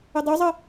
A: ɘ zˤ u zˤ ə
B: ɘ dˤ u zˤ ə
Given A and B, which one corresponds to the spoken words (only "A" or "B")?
B